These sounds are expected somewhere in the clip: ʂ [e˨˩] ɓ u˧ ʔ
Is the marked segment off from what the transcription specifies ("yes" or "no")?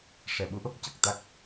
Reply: yes